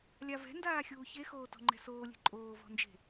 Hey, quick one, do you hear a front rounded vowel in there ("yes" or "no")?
no